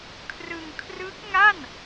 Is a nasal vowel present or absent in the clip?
absent